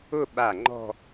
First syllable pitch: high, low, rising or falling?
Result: falling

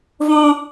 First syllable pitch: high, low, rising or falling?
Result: high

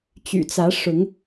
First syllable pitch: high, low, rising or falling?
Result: low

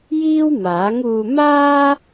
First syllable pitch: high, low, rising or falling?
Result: high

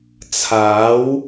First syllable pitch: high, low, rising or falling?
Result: rising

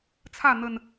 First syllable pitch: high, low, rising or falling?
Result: falling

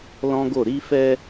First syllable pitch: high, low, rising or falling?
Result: high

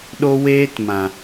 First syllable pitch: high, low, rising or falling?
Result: high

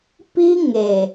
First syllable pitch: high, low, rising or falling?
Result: high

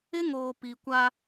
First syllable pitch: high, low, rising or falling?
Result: high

